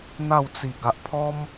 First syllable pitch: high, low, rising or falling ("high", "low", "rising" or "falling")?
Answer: falling